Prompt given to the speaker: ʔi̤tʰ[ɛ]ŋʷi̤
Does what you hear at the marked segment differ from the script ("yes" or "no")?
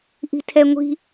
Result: no